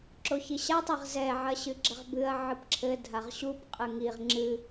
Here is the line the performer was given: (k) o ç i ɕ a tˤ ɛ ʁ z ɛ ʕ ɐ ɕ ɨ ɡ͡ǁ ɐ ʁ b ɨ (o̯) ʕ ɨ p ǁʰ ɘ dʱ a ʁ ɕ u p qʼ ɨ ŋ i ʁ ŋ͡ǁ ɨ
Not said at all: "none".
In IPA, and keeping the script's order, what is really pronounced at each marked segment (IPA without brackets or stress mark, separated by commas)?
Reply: ǁ, ɐ̯